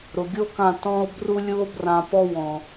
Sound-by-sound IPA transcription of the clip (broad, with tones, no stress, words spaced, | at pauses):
ɾʊ˨ɡʲo˦kã˦˨ tɔ̃˧o̯ bru˦ lʲu˦o̯brã˧pɔ˦ wɔ̃˨